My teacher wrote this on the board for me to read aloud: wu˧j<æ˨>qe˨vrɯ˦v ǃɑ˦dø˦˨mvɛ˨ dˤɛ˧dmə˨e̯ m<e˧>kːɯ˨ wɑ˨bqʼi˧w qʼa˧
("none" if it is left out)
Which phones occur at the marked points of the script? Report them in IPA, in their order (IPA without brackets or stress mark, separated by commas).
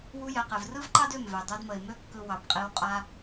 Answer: ɛ˨, ø˧